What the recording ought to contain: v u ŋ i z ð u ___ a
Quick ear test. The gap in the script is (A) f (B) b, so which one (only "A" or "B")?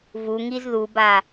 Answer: B